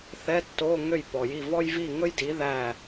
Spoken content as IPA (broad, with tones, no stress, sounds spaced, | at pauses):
θ ɛ˧˥˧ tː o˧˥˧ ŋ ø˦˨ j p ɔ˨ j i˦˨ v ɔ˥ j v i˦˨ ŋ ɵ˥ j d i˨˥ ð æ˦˨